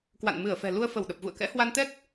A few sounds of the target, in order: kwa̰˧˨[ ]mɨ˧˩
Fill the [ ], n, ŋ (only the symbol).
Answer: n